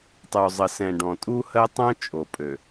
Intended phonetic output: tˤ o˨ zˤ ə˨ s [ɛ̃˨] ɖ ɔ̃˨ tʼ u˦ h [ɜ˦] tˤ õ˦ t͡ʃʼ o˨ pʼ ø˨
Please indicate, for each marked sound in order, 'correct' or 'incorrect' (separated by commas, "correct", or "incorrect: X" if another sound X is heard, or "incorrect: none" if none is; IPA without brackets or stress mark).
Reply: correct, correct